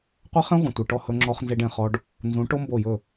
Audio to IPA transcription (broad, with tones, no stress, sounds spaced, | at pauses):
qʷ ɛ˦ χ ẽ˦ ʁʷ ẽ˨ tʷ ɛ˨ ʈ ɔ˦˨ h ɵ˦ ŋ͡ǁ ɔ˦ χ n z e˦ ɖ ẽ˨ χ ɔ˦ ɖ | n z ũ˨˦ ʈ o˦ m b o˦˨ j ɵ˦˨